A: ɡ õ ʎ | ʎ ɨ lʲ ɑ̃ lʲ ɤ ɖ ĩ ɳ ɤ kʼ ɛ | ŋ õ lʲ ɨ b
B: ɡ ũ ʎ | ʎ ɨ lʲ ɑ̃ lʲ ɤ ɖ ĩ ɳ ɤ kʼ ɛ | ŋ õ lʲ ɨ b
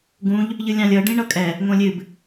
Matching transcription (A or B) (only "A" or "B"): B